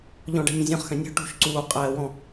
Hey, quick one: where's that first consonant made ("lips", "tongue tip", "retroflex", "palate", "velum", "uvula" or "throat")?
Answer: palate